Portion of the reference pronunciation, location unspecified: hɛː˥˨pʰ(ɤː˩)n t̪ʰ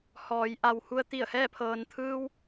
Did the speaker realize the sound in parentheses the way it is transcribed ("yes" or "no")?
yes